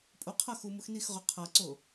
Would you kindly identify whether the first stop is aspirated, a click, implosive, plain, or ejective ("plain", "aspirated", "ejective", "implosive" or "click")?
ejective